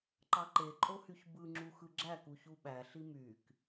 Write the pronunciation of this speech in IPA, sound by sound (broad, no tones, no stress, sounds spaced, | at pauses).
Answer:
ǃ ɑ ǃ e ǃʼ o h y ç b ɯ ŋ͡ǁ u x ɯ ɡ͡ǁ æ k u ç u ɓ æ ɬ i m y k